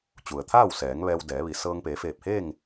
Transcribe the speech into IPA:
t͡ɕu˩ə̯t̪ʰaː˥˨wsɛː˩˧ŋ ʋɛː˧wdɛː˩˧ʋi˩˧ sɤː˧ŋpeː˩˧feː˧˩p̚heː˥˨ŋ

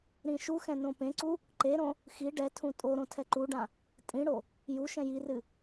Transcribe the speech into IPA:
ɾĩʃuxɛ̃ nõpẽǀu | ǃeɾõ | xi ɖɛtʰũ tʼoɾõ tʰɛǃuɖã | tʼĩɽo | juʃɛ̃ jirɨ

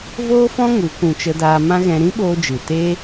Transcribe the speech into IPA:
voː˦fɔ̃˦ ŋu˨˦kũ˧ t͡ʃə˧daː˧ mã˦ɣɛ̃˧ ɾĩ˦ɓoː˧d͡ʒɨ˨ teː˦

